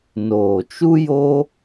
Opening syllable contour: low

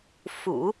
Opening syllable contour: low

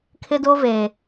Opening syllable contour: high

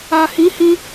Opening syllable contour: low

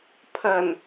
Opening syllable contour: low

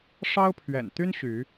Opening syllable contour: high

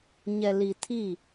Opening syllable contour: low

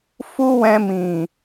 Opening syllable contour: high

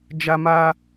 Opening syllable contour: high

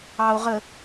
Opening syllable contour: low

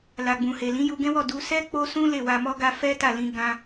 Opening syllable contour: low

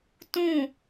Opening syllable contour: falling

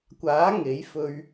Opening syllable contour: rising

